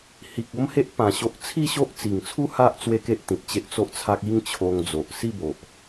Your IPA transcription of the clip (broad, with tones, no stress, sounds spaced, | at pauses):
h i˨ k̚ o˦ m h e˦ ʔ p ã˧ ɕ o˦ ʔ t͡sʰ i˥˧ ɕ o˦ ʔ t͡s i˨˩ ŋ t͡sʰ u˦ h a˦ ʔ t͡s w e˦ k e˦ ʔ t̪ ĩ˨ t̚ t͡ɕ e˦ ʔ t͡s o˦ ʔ t͡sʰ a˦ k̚ i˦ ŋ t͡ɕʰ o˧ ŋ d͡z o˨ ʔ s i˥˧ b o˨ ʔ